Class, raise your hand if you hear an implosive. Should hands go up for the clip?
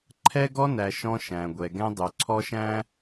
no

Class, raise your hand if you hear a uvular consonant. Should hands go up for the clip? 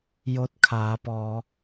no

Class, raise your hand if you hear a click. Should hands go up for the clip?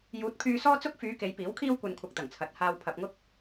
no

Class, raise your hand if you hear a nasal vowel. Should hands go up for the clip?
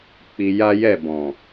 yes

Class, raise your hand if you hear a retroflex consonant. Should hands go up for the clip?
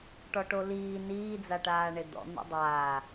yes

